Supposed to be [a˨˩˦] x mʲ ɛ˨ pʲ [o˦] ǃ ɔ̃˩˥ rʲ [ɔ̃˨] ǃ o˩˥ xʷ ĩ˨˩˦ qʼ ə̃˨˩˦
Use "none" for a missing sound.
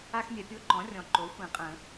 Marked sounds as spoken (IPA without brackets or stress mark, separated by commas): a˦, o˦, ɔ̃˨